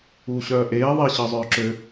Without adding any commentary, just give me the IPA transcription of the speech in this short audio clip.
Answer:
uː ɕ œː ʔ eː ðˤ i ɕ əː zˤ œː ǁ ø

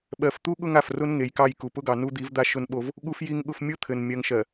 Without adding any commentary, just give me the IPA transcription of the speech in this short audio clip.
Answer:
ɓ ɜ˨ f t̪ u˦ ɠ ʊ˦ ŋ a˨ f r ʊ˦ n ŋ e˨ j k ɑ˦˨ j k u˨ p ʊ˦ ɡ ɑ˨ n u˦ d̪ i˨˦ v d̪ a˦ ʃ ʊ˦ n ɓ o˦ v | ɠ u˦ f j i˦ ŋ ɠ ʊ˦ f mʲ ʊ˦ t̪ʰ ɘ˨ n mʲ ɜ˨ ŋ ʃ ɜ˨

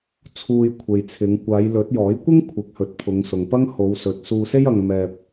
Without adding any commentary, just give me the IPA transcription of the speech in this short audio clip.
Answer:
t͡sʰ uː˧ j kʷʰ e˨ j t͡sʰ ɪ˨˧ ŋ kʷ aː˨˧ j l ɵ˨˥ t̚ j ɔː˨˥ j kʷ ɪ˥ ŋ kʷʰ ɪ˨˥ k̚ h ɵ˨˥ t̚ pʰ ʊ˨˧ ŋ s ʊ˨ ŋ p ɐ˥ ŋ h o˨˧ w s ɵ˨ t̚ s uː˧ s e˥ j ɐ˧ ŋ m ɛː˧ p̚

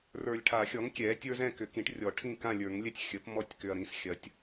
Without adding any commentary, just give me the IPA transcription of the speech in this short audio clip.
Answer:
r ə˞˨ lʲ ʈʰ a˨˩˦ xʲ ɔ˩˥ ŋ kʲ ɛ˩˥ tʲ ə˞˦ z ɛ̃˥˨ k ʏ˨˩˦ k ĩ˩˥ ʈ rʲ ɔ˨˩˦ ʈʰ ĩ˥˨ k ã˥˨ lʲ ə˞˨˩˦ ŋ lʲ ɛ˥˨ tʲ xʲ ə˩˥ p m ɔ˦ tʲ k ʏ˨ ɐ̯ ɾ ĩ˩˥ s xʲ ɐ˩˥ tʲ

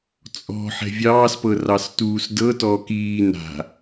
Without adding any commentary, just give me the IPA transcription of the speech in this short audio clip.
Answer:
t͡sʼ ɔ̤ ħ ɛ̤ vʲ ɑː s p ɤ r ɑ s t uː s d ɤ t ɔː k iː n a̤

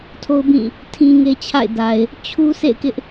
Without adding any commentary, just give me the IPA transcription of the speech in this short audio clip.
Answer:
tʰ o˦ ʊ̯ b ĩ˦˨ | tʰ ĩ˦ ŋ e˦ t͡ɕʰ a̰˦˨ ɪ̯ d a˨ ɪ̯ | t͡ɕʰ u˦ s ḛ˦˨ ɪ̯ k ɪ˦ ʔ

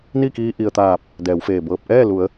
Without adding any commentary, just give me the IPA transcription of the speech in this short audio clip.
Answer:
n i˥˨ k iː˧ ʔ i˩ ə̯ t̪ aː˧˩ p̚ | d ɛː˩˧ w f eː˧˩ b ɤː˧ p̚ ʔ ɛː˥˨ l u˩˧ ə̯

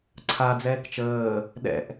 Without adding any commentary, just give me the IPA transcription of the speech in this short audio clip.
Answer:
ǀʰ a d͡z ɛː k t͡ʃ əː | ɗ ɛ̰ ʔ

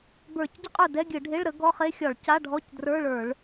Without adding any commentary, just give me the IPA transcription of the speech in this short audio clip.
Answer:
b ə˞˧˩˧ c ɟ ɘ˥ qʼ ɵ˥˩ d ɛ˧˥˧ ɡʲ ɘ˧˩˧ ɖʱ e˧˥˧ ɭ ɾ ə˨˥ ɡ ɔ˧˥˧ χ e˥ xʲ ɒ˧˩˧ ɭ c a˧˥˧ ɖʱ ɔ˧˥˧ c d r ə˞˧˥˧ ɭ ə˞˧˩˧ ɭ

